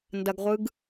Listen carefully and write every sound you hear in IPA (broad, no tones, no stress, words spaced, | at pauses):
ndɐɡʁʷɯɡ